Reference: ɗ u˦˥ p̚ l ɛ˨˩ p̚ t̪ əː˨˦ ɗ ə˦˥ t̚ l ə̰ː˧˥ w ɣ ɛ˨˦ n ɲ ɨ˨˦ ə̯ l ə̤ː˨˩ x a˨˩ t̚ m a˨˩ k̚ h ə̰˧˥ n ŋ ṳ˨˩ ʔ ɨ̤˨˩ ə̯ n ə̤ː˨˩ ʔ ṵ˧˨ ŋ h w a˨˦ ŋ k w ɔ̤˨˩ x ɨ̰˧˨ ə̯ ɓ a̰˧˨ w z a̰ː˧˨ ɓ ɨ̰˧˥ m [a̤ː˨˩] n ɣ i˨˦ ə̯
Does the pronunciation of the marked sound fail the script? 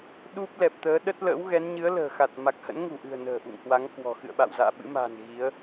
no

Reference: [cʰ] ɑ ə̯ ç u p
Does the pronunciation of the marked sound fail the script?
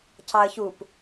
no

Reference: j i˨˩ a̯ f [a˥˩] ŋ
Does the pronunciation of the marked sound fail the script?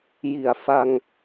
yes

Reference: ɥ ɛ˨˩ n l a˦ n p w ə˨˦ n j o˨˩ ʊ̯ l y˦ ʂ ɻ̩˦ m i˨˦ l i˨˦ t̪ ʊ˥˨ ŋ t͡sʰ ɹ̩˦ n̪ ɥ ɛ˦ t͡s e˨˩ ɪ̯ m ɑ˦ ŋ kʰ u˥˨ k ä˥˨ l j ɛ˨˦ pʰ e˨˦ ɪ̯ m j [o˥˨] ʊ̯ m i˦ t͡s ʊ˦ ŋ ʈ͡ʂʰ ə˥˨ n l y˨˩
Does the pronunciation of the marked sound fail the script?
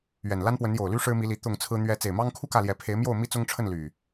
no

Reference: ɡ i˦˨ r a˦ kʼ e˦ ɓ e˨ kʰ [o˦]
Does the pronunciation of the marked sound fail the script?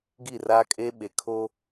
no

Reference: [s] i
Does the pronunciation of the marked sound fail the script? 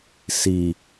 no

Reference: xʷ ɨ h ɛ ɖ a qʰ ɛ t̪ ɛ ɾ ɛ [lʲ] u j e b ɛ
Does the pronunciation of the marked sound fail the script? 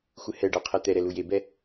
yes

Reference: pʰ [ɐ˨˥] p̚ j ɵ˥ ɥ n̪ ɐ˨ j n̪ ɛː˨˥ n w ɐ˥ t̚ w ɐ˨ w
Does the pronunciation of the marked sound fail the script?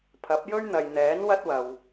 no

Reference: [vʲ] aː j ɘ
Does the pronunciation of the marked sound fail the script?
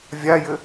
no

